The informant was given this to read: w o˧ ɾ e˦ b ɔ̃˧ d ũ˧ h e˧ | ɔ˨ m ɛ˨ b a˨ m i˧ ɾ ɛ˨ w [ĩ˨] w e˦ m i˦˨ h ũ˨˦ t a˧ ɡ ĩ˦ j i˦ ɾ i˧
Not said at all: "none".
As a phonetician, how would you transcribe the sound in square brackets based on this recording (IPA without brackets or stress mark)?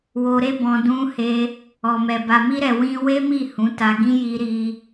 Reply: ĩ˧